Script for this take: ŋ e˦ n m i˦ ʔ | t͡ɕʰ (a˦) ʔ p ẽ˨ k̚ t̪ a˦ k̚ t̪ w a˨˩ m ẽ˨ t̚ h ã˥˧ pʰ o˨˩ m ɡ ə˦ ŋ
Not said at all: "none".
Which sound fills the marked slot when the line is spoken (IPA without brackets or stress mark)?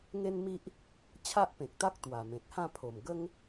a˦